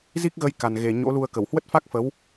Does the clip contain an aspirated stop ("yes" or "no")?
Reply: no